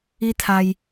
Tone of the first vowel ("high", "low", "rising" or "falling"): high